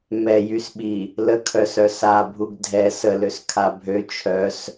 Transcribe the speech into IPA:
m ɛ j y s ɓ i | l ə kʰ œ s œ s a bʱ u ɡ dʱ ɛ s ə l ø s kʰ a bʱ ø t͡ʃʰ œ s

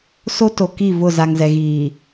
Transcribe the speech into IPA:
s o˦ t o˨ k i˦˨ v ʊ˦˨ z a˨ ŋ z ɛ˨ ɣ iː˨

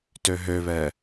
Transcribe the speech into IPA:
t ø ɦ ø β ɛ

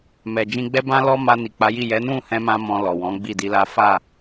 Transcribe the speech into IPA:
m ɛ˨ d͡ʒ ĩ˧ ɡ͡b ɛ˦ b ã˦ l ɔ˦ m a˧ n i˨ k͡p a˨˦ j i˦˨ j ɛ˨˦ n ũ˦˨ h ɛ̃˧ m ã˧ m ɔ̃˧ l ɔ˨ w ɔ̃˨˦ ɡ͡b i˦˨ d i˧ l a˦ f a˦˨

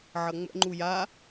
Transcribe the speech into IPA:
ʕ ʌ ŋ͡m ə̰ ŋ͡ǃ u j a

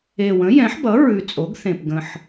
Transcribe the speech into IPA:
e˨˩ w ə̃˩˥ j ɛ̃˩˥ ħ b ʌ˩˥ ɹ ʉ˨˩ t͡sʼ o˩˥ ɡ θ ẽ˨˩ p ɡ ə̃˨˩ ħ

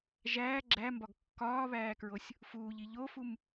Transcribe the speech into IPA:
ʒ æː ɡ͡ǁ æ m b ɒ ɡ kː ɒː β æː k ɹ o sʲ | f uː ʎ i ʎ o f u m

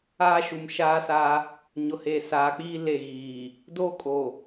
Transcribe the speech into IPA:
aː˦ ʃ u˨ m ʃ aː˦ s aː˦ | ɲ ʊ˨ h e˨ s aː˨ k͡p iː˦ l e˦˨ ɣ iː˨ | d oː˦ kʼ o˨

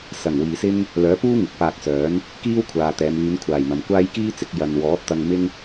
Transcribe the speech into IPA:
s ɐ˨˩ ŋ w iː˨ s ɪ˥ ŋ | l œː˨˥ p uː˥ ŋ ɪ˨˥ k̚ p aː˧ k̚ s œː˨˥ n | k iː˥ w kʷʰ aː˨ t̪ ɛː˨˧ m yː˨˧ n kʷʰ aː˨˩ j n̪ ɐ˨ m kʷ aː˥ j k iː˥ t͡s ɪ˧ k̚ j ɐ˧ n w ɔː˨˥ t̚ t̪ ɐ˧ ŋ m ɪ˥ ŋ

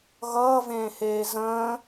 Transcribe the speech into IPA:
ɣ ʌː v ẽː h eː z ə̃ː

